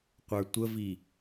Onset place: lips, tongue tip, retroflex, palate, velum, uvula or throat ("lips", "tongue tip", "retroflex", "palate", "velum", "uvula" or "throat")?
uvula